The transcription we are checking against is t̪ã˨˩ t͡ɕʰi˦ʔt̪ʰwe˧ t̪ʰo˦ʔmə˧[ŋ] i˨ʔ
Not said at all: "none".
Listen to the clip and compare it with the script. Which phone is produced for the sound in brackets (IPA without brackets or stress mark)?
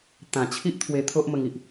ŋ